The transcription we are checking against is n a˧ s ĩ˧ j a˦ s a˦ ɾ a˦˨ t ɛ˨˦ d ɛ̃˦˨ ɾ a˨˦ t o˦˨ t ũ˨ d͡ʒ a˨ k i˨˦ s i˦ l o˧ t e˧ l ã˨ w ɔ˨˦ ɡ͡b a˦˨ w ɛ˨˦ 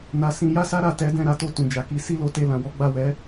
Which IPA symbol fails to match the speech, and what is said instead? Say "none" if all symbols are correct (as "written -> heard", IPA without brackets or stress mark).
none